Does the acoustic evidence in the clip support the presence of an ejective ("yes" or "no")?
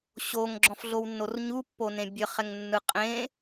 yes